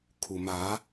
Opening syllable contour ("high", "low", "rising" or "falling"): low